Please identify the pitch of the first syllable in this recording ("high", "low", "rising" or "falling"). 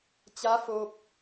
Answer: rising